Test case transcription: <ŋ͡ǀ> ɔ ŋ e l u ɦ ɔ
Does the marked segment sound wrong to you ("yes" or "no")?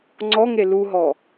no